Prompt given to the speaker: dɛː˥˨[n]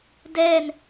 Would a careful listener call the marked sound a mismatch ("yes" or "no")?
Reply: no